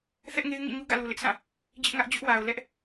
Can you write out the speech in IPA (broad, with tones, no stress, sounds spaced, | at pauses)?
θ ɛ˦ ʔ ŋ e˦ ɪ̯ ŋ ḭ˦˨ ɲ u˦ ɡ ä̰˦˨ l u˨ l ɪ˦ ʔ s ã˦˨ | d͡ʑ ɪ˦ ʔ ŋ ä˦ ʔ d͡ʑ ʊ˦ ʔ w a˨ ʊ̯ l ɛ˦ ʔ